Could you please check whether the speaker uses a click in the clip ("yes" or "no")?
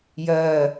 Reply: no